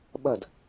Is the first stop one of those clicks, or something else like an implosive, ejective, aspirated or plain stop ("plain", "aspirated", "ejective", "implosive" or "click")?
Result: implosive